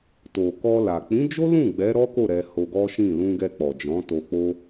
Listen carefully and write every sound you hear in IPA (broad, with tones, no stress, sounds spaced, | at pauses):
t o˨ k ɔ˧ l a˨ k͡p ĩ˨˦ d͡ʒ o˦ l ũ˦˨ ɡ͡b ɛ˨˦ ɾ ɔ˦ k o˦˨ ɾ ɛ˧ h o˧ ɡ ɔ˦ ʃ ĩ˦˨ l ũ˧ ɡ ɛ˧ k͡p ɔ˨ d͡ʒ ɔ̃˨˦ t o˧ k͡p o˦